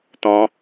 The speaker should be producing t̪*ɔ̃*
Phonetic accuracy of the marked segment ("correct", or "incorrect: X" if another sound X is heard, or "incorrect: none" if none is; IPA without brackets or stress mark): correct